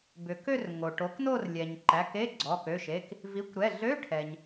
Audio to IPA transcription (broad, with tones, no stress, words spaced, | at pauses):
bʏ˩kø˥˧r ŋo˩ʈo˩˥kno˥˧rlʲɛ˩ɲ ǃæ˩˧˩ke˧˥˧ ɡ͡ǀɔ˩˧˩kø˩˧˩ʃe˩˧˩k | vi˩˥kʷɾɛ˩˧˩ ɮø˧˥˧ʈʰɛ˩ɲ